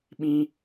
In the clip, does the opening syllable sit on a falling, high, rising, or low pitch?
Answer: high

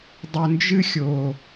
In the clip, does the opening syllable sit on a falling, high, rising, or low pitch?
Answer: low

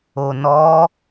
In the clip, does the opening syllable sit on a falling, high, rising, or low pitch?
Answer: low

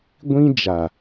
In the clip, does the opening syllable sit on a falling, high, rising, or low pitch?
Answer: high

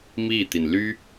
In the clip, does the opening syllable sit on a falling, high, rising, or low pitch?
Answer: falling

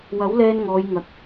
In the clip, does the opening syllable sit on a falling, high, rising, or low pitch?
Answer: rising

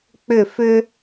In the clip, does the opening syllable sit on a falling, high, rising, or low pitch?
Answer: falling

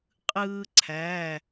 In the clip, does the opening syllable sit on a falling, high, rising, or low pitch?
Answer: high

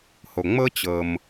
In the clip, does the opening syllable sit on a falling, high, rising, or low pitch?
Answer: low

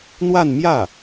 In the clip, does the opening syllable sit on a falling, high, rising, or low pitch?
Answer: falling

